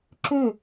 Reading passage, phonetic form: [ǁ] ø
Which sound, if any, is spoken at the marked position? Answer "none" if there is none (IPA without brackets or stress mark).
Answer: ǁ